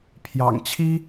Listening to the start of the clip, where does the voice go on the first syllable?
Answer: low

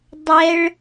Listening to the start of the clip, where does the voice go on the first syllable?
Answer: high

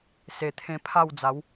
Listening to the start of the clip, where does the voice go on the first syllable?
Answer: low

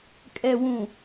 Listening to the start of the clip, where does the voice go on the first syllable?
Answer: low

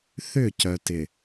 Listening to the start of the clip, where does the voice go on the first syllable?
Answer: falling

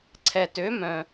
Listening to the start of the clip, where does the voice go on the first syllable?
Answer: low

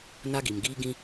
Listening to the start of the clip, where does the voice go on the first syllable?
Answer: high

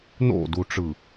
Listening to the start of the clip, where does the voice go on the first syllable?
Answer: falling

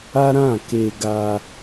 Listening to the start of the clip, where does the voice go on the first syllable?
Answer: high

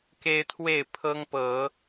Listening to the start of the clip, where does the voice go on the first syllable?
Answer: high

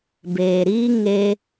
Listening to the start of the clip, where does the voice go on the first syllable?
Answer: low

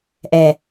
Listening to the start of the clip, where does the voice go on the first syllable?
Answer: low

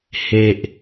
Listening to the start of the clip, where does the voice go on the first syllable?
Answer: low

